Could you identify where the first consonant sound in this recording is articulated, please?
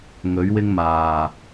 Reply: velar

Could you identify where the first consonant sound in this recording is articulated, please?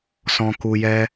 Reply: alveolar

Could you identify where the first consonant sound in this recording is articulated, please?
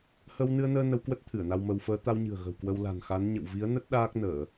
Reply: glottal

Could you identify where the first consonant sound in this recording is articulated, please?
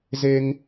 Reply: alveolar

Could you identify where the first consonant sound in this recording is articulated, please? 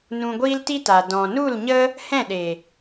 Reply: alveolar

